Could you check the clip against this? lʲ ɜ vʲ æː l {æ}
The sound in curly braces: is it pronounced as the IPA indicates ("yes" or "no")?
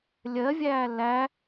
yes